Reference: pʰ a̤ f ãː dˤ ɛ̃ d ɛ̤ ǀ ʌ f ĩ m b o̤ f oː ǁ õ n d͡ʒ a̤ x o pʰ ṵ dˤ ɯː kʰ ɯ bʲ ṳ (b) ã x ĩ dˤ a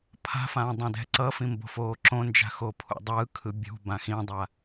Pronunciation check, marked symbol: correct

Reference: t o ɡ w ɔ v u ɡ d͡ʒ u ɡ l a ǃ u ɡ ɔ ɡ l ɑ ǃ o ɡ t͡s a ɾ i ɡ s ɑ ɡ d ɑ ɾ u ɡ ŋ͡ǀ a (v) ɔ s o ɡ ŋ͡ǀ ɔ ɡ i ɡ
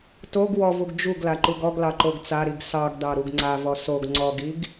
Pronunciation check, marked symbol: correct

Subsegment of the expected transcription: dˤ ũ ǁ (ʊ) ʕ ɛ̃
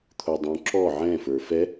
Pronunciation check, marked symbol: incorrect: ɔ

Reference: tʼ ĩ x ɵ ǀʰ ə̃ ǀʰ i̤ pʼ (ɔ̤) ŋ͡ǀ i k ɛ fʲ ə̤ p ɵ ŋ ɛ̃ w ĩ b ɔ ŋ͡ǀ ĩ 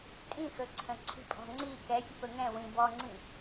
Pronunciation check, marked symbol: correct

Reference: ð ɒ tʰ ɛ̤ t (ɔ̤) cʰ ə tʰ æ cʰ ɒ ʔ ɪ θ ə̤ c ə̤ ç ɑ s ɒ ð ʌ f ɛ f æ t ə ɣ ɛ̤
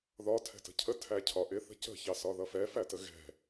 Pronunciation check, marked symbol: incorrect: ə̤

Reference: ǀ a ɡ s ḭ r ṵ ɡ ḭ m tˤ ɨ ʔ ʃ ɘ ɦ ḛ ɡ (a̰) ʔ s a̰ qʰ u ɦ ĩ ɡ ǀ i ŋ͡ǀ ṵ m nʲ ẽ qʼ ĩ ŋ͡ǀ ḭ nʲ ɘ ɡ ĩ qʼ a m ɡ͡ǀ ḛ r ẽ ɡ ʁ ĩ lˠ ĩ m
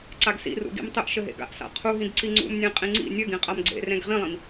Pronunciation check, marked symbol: correct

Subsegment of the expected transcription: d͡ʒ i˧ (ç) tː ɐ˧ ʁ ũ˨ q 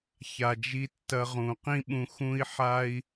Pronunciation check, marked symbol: incorrect: none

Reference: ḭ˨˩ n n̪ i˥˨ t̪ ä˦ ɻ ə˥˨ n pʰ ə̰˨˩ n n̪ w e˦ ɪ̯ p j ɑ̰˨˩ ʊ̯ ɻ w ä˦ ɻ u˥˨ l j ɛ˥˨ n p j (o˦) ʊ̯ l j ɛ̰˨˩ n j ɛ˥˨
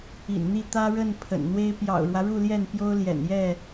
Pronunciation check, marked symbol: correct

